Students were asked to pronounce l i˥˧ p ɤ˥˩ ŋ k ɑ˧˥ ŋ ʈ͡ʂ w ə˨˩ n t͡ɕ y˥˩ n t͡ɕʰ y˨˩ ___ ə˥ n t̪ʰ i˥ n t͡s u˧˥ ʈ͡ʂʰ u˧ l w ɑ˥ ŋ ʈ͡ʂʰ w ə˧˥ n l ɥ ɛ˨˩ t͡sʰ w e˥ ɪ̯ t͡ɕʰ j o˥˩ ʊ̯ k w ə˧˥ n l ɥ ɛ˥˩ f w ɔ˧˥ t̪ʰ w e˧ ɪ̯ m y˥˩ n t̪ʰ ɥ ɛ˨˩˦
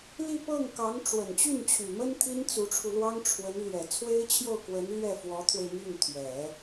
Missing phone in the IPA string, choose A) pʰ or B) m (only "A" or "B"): B